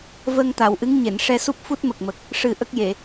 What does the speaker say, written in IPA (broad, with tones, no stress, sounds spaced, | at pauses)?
v əː˧ ŋ t̪ a˨˩˨ w ʔ ɨ˧˥ ŋ ɲ e˨˩˨ n ʂ ɛ˧ s u˦˥ p̚ f u˦˥ t̚ m ə˨˩ k̚ m ə˨˩ k̚ | ʂ ɨ˨˩ ʔ ə˦˥ k̚ j e˨˩˨